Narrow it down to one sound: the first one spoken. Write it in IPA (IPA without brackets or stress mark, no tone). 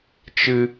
t͡ʃ